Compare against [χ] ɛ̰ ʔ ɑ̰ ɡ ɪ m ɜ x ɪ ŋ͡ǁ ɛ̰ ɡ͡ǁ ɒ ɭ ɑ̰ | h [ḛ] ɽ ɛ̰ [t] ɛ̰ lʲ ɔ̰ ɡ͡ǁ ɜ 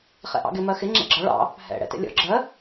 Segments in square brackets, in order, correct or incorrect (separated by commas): correct, incorrect, correct